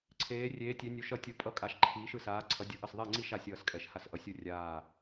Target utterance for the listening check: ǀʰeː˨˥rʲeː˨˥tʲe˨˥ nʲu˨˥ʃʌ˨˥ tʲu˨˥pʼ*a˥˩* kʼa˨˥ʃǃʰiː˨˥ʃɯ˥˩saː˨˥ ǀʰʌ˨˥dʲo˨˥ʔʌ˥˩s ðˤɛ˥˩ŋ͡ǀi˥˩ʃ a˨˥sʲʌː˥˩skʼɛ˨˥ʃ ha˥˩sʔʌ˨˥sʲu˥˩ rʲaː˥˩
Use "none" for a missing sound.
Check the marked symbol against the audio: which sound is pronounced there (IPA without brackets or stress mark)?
ʌ˥˩